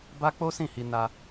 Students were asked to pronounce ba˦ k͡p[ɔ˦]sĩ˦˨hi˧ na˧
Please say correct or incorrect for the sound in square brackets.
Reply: incorrect